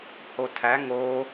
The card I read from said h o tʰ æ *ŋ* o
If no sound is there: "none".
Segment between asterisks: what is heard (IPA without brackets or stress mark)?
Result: ŋ